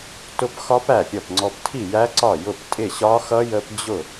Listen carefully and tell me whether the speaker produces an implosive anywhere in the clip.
no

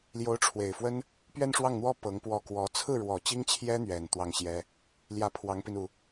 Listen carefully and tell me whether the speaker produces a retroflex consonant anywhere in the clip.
yes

